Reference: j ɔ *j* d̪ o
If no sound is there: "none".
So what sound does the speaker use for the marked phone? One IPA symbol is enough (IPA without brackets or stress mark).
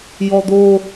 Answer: none